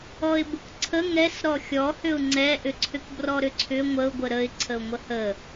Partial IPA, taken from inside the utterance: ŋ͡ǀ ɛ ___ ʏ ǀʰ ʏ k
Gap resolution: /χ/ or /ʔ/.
ʔ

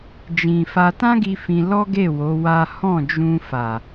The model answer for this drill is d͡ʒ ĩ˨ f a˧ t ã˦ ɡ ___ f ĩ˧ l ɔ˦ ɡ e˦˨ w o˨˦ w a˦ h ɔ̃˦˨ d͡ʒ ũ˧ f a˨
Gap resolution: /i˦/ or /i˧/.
i˧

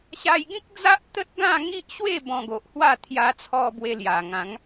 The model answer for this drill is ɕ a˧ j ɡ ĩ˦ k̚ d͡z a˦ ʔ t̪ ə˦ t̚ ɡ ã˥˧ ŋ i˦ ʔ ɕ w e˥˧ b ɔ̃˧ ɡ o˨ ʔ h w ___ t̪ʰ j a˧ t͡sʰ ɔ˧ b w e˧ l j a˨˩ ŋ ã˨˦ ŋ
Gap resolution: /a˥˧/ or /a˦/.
a˥˧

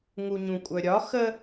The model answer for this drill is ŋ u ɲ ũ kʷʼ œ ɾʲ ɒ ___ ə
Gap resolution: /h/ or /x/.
x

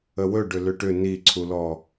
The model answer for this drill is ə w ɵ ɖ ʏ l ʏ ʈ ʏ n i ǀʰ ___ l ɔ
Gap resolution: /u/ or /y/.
u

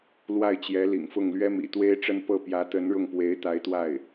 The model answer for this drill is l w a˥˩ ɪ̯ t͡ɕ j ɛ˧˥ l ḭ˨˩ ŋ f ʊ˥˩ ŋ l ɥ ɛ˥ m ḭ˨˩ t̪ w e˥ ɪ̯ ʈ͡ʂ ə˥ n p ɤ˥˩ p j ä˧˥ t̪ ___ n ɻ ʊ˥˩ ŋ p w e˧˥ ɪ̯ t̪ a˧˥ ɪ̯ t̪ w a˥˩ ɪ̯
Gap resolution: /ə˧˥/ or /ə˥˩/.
ə˧˥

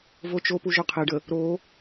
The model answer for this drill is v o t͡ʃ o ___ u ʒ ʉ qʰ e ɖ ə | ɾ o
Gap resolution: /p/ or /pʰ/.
p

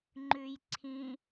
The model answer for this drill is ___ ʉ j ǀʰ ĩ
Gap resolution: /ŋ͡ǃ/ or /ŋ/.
ŋ͡ǃ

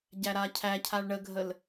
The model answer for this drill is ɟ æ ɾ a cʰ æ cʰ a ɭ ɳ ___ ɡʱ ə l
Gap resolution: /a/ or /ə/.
ə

